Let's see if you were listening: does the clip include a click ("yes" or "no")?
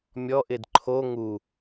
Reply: yes